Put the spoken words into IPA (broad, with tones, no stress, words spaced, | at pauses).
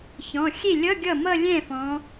çɔ̃˩˧˩xʲe˥˩lʲʌ˧˥˧ ɡʲʌ˥˩mʌ˥˧lʲɛ̃˥˩fɔ̃˩˧